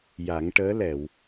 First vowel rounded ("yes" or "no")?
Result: no